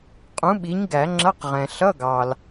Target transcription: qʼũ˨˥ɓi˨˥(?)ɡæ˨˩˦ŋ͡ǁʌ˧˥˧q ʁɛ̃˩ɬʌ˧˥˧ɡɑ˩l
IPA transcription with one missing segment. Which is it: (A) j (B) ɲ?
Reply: B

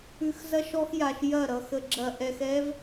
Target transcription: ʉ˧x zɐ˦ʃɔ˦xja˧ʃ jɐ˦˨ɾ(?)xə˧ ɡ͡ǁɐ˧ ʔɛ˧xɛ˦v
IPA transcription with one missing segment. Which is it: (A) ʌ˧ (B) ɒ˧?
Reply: A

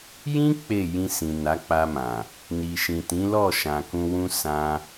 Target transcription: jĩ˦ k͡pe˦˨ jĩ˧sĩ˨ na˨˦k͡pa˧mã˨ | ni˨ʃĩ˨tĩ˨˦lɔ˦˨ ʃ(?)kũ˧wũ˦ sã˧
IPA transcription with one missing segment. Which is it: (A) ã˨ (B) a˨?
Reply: A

